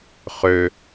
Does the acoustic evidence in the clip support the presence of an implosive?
no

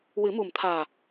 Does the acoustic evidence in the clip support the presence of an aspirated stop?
yes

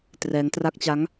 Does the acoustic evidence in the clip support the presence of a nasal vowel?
no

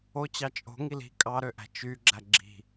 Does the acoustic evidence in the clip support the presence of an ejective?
yes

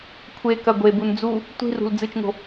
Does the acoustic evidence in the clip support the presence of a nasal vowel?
no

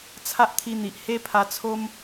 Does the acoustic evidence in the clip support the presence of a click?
no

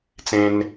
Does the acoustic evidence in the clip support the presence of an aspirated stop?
no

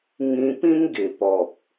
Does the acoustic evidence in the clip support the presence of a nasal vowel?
yes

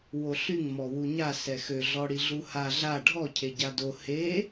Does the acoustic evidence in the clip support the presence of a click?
no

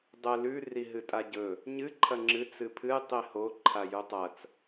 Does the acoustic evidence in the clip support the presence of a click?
yes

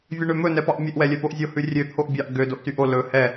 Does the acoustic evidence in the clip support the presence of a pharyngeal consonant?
no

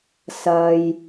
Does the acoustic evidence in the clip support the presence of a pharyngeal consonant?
no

